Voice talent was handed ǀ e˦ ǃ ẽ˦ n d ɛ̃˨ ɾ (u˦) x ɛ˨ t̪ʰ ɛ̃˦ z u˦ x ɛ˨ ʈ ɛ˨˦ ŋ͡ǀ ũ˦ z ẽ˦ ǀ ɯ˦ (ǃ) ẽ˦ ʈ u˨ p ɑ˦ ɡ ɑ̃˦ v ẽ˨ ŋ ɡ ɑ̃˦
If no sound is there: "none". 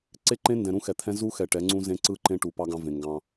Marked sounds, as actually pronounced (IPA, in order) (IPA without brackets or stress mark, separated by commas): ũ˦, ǃ